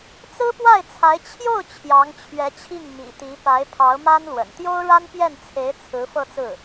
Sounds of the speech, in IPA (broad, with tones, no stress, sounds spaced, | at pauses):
t͡s ɹ̩˥ p w a˥˩ ɪ̯ t͡sʰ a˧˥ ɪ̯ t͡ɕʰ j o˥˩ ʊ̯ t͡ɕʰ j ɑ˧˥ ŋ t͡ɕʰ ɥ ɛ˧˥ t͡ɕʰ i˥˩ ŋ m ḭ˨˩ t̪ i˧˥ p a˧˥ ɪ̯ pʰ ɑ˧˥ ʊ̯ m a˥ n l w ə̰˨˩ n t̪ j o˥ ʊ̯ ɻ a˥ n p j ɛ˥˩ n t͡sʰ e˧˥ ɪ̯ t͡sʰ ɹ̩˧˥ f ɤ˥˧ t͡s ɹ̩˥˩